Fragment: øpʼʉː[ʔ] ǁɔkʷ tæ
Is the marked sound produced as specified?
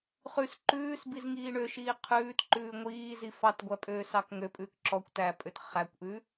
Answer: no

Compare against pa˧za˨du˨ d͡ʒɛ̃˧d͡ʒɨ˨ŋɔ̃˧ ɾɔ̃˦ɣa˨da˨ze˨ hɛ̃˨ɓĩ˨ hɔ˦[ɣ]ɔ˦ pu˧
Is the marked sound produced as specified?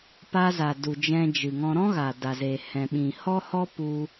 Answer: no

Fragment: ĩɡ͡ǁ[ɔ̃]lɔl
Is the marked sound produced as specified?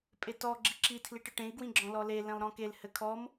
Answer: yes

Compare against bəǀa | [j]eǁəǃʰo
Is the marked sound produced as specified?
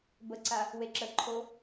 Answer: no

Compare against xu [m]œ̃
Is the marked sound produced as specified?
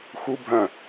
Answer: no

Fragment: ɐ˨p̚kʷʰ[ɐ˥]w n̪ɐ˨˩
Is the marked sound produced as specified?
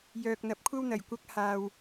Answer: yes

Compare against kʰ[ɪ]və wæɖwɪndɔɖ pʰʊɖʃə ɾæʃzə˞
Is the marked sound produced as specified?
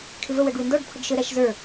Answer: yes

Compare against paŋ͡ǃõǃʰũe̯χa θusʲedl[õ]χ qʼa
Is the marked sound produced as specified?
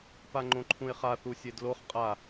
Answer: no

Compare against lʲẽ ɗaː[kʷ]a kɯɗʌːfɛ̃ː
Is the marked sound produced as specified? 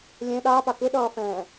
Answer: no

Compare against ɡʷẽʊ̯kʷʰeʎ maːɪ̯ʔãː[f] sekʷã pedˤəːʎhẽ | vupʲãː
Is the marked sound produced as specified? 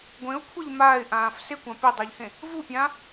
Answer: yes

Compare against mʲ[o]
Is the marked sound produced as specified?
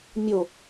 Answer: yes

